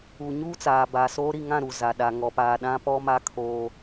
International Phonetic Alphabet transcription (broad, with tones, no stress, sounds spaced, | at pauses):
u˨ ɲ uː˦ t͡s aː˨ b aː˨ s oː˦ ɾ i˦˨ ŋ ã˦˨ ɾ u˨ z a˨ ɗ a˨ ŋ ɔ˨ p a˨ ɗ ã˦ p ɔ˦ m a˦ kʰ oː˦